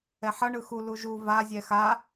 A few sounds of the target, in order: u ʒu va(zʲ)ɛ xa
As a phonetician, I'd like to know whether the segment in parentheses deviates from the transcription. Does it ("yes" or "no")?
no